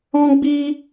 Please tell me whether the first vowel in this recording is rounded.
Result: yes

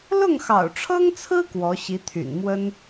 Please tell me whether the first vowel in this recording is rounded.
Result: yes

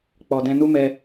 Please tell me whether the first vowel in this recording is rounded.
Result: yes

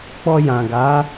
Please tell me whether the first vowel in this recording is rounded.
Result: yes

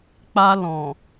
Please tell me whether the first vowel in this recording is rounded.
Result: no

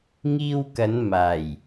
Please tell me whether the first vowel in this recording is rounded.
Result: no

